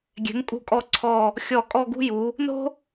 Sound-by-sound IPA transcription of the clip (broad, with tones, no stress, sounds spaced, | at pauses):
ɡʲ ɛ̤˩˧ ŋ kʼ ṳ˧˩ kʼ ɔ˧˩ ǀʰ ɔ˧˩ | xʲ ɔ˧˩ kʼ ɔ˥˧ ɡ ṳ˥ j u˩˧ | n o̤˥